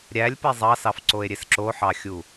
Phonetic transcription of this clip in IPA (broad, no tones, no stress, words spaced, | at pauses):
ɾʲælʲpe zˤɑsɑfǀoe̯ ɾʲesǁoħɑxʲu